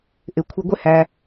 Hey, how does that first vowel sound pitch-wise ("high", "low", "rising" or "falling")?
low